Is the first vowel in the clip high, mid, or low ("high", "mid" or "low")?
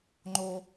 mid